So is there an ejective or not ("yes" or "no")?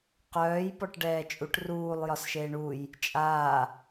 yes